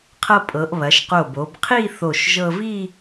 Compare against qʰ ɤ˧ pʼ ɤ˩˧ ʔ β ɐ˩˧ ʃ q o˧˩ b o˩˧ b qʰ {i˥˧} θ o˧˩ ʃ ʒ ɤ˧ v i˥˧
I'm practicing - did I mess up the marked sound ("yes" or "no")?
no